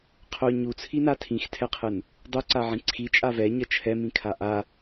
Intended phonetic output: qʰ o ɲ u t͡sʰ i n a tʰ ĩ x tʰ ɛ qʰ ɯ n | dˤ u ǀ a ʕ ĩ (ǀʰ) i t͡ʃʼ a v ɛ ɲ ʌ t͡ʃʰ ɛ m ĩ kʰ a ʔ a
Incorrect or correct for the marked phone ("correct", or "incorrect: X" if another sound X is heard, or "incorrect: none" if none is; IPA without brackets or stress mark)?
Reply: correct